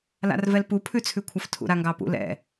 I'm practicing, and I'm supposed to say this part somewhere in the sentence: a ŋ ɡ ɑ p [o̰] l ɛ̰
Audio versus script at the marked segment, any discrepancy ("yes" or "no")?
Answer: yes